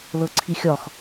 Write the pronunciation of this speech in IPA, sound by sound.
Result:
lɤǀʰixʲɒx

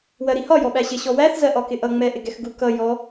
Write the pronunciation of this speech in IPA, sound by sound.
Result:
wɜɾihɒ jɔɓæɕɪɕɔ wæθzɜʔɒkɪ ʔʌŋ͡mɛ ʔɪɡɛxɡu kʌ jɔ

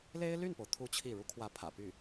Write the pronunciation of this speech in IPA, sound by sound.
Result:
le˥ɪ̯ly˥˩npo˩ʊ̯ t̪ʰu˥˧t͡ɕʰi˥˩ ɻu˧˥kʰwä˧˥pʰä̰˨˩ py˥˩

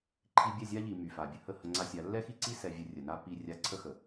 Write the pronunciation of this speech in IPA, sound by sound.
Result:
ǃʰi˧ bʲɛ˦˨zʲa˦ʎi˨ my˨fa˨bʲə˧ hə˦˨hə˧ŋ͡ǀa˧sʲa˨˦ lːɛ˦xi˦ǀi˦ sɛ˧vʲə˧rʲə˨na˦ pi˧ rʲa˧ǀʰə˦xə˨

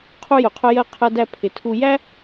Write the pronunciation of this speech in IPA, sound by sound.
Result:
qʰu˦jʊ˨qʰʊ˦jɜ˦ qʰɜ˧dæ˧ pʰɪ˨tʰu˧ jæ˦

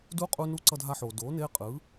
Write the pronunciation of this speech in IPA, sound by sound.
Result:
du˧˥qʼu˧ nu˧˥ǀʌ˧dʱa˧ħoː˩ doː˩˧neː˧qʼɯː˩˧

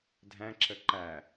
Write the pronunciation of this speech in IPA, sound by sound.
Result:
dʱæ̃ǁə ǃæ

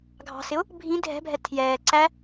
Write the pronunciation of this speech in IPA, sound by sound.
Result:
ɡʱɑ̤sɪʊ̯ | bʱĩ dʱɛ̤bʱɛ tʰjɛː ǀæ

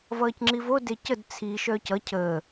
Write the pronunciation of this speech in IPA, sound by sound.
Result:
vʌːcŋ͡ǁivo decəd t͡sʰi ʃœːcʌ cʰəː

